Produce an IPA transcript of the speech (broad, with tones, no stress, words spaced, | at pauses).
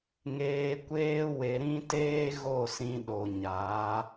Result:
ŋeː˧kʷeː˦ we˧ɾĩ˦teː˦ ɣo˦˨sĩ˧ɗo˨ɲaː˨˦